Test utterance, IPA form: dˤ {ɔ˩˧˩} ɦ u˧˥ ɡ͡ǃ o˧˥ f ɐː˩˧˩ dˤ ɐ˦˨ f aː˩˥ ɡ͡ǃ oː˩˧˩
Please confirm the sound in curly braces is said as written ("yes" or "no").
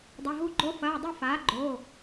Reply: no